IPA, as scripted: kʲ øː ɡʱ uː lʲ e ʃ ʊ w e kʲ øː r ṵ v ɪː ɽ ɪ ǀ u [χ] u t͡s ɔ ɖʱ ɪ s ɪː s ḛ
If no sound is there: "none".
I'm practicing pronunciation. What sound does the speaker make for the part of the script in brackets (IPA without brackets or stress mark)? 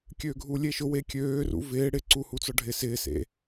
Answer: h